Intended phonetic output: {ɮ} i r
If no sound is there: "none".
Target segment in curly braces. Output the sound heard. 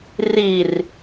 r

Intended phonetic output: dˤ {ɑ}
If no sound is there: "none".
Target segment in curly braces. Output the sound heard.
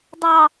ɑ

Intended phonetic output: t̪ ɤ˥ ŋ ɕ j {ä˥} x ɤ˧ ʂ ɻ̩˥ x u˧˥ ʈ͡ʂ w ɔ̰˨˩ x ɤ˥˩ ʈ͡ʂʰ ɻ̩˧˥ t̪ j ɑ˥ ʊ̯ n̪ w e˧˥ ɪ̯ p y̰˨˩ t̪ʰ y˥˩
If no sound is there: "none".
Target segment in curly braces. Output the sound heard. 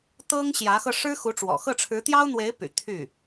ä˧˥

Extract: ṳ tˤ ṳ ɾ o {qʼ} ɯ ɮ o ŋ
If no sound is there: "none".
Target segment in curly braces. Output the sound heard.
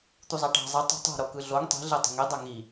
k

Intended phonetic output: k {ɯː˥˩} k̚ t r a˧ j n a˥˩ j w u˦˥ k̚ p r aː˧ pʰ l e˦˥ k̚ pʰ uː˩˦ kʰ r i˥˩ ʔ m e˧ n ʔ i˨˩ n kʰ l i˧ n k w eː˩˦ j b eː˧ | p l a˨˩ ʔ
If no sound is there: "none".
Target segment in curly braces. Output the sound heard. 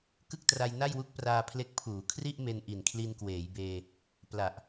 ɯ˥˩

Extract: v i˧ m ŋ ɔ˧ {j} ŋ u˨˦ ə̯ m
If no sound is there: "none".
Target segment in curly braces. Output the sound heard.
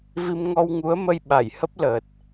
w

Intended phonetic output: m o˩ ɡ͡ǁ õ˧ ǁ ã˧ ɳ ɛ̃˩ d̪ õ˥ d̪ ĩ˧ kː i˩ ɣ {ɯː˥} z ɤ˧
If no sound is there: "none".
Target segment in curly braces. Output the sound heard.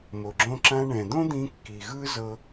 ɯ˥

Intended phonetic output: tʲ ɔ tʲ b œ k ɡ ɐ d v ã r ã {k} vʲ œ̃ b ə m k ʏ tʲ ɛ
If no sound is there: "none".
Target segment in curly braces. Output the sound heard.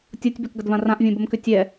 ʔ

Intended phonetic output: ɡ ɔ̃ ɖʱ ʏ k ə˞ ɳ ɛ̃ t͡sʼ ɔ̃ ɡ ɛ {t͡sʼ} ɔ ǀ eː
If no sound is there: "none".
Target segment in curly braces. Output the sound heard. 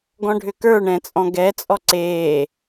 t͡sʼ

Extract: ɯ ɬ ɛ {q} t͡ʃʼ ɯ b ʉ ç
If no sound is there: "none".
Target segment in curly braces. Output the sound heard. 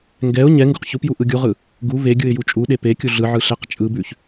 q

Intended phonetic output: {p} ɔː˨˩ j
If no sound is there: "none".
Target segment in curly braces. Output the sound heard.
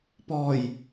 p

